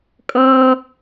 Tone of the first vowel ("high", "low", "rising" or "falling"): high